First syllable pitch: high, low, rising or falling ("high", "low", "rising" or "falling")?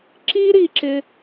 high